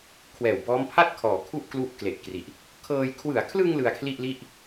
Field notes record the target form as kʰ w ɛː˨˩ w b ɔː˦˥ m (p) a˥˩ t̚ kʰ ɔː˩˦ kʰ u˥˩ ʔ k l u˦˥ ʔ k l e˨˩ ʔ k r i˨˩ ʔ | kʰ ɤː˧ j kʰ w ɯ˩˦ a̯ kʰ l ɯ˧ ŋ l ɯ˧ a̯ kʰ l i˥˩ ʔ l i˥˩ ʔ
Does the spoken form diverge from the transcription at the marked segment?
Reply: yes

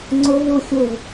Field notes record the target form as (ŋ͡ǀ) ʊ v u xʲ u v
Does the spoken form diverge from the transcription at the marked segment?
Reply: no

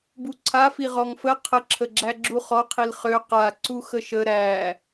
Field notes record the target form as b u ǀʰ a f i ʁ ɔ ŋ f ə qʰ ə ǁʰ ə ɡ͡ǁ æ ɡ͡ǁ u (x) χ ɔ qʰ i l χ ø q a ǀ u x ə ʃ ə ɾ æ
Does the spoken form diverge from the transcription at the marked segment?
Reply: yes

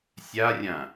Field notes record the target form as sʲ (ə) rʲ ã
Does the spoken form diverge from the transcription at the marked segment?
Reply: yes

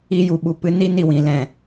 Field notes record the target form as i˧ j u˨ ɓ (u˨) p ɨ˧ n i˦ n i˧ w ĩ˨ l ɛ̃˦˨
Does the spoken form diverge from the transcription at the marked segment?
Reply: no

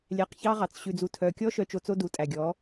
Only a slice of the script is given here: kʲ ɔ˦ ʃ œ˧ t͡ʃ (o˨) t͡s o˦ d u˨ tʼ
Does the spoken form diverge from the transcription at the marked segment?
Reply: yes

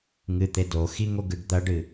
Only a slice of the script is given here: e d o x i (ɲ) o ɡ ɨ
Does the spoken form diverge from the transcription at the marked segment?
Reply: yes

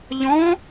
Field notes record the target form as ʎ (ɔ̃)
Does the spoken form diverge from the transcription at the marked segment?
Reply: no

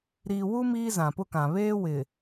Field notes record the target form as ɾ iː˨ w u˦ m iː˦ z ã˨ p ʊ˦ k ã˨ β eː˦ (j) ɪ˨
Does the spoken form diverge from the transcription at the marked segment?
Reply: yes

